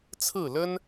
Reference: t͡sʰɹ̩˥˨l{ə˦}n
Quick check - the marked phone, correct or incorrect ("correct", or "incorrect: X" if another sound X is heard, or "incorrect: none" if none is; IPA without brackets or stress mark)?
correct